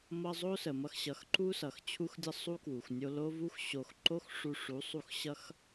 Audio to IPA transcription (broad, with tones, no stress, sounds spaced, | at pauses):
m ʌ˧ zˤ o˦ s ə˨ m ʌ˧ x ɕ ʌ˨˦ x ǃ u˦ s ʌ˨ x t͡ɕʰ u˦ x dʲ ʌ˦ sˤ u˦ k w u˨ x nʲ o˧ l o˧ v u˧ x ɕ o˨ x ǃ o˦ x ʂ u˧ ʂ u˨˦ sˤ u˧ x ɕ ʌ˦ x